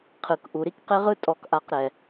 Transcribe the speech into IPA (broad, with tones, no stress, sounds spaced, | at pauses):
qʰ ɯ˨ k ʔ u˨ ɾ i˦ k q e˦ ʁ ɯ˦ tʼ ɔ˧ k ʔ a˧ q ɾ ɛ˨